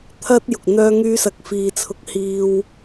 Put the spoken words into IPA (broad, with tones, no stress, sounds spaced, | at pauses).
t̪ʰ ɐ˥ t̚ j ʊ˨ k̚ n̪ œː˥ ŋ yː˥ s ɐ˧ k̚ f iː˨ t͡sʰ ʊ˧ k̚ h iː˧ w